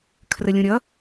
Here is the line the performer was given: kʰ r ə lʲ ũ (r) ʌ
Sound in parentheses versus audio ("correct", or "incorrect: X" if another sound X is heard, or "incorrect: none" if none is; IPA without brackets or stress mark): incorrect: ɾʲ